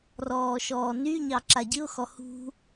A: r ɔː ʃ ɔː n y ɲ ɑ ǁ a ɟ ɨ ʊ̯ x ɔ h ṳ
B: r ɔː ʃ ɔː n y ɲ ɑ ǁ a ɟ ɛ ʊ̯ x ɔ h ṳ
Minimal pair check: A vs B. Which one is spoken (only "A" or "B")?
A